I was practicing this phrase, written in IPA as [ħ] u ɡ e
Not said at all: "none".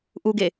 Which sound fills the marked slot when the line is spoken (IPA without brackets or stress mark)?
ʔ